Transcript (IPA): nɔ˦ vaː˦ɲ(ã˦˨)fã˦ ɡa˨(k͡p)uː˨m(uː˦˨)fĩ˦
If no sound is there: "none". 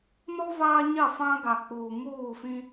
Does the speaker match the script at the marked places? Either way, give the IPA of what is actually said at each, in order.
a˦˨, k͡p, uː˦˨

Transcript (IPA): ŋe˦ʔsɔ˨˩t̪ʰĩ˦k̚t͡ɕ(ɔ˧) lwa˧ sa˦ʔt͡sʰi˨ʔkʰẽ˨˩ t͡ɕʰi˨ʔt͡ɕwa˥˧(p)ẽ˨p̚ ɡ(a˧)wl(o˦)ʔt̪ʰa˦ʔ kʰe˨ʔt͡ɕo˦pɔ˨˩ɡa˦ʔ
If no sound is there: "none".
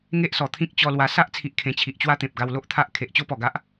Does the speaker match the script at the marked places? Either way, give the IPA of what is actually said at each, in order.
ɔ˧, t̪, a˧, o˦

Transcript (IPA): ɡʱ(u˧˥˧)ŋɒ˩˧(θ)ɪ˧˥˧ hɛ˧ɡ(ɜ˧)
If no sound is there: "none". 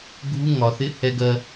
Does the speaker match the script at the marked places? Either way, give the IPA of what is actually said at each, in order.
u˧˥˧, θ, ɜ˧

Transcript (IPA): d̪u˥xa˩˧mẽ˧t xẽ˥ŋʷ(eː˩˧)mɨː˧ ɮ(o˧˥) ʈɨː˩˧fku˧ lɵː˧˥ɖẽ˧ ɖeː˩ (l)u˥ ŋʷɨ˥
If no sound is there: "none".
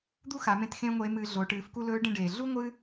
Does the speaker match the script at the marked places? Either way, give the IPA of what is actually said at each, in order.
eː˧˥, o˩˧, ɮ

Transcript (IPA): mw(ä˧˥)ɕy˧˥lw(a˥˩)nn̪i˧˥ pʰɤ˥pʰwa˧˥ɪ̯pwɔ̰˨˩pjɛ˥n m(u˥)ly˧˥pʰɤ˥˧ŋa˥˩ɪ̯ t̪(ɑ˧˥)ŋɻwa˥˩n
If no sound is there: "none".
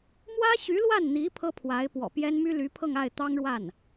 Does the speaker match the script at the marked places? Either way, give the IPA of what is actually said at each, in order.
ä˥, a˥˩, y˥, ɑ˥

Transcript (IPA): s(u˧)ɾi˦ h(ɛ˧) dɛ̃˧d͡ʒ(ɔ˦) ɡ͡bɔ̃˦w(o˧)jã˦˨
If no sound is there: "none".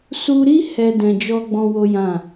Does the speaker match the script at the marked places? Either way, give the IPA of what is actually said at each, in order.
u˧, ɛ˦, ɔ˦, o˦

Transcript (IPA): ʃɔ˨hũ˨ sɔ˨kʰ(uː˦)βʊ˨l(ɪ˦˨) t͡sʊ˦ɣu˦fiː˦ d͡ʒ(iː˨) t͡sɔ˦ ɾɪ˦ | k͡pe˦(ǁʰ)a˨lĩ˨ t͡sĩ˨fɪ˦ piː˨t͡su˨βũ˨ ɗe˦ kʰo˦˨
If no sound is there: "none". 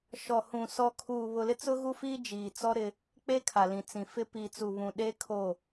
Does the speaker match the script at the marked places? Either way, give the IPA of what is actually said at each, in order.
uː˨, ɪ˦, iː˨, kʰ

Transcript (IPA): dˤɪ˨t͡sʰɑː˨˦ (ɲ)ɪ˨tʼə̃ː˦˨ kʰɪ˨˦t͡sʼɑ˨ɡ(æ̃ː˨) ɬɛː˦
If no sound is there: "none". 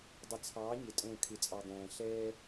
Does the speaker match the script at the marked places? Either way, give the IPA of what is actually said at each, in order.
ɲ, æ̃ː˨

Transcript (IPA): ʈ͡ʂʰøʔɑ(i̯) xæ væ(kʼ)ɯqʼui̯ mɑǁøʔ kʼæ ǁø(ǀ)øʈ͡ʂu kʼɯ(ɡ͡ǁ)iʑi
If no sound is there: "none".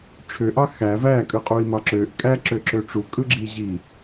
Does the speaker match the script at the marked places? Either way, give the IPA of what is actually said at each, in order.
none, kʼ, ǁ, ɡ͡ǁ

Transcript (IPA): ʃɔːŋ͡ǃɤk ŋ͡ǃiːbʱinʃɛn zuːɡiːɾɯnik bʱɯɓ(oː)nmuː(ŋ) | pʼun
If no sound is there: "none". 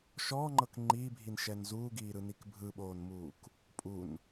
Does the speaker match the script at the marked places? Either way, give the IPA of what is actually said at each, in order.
oː, k

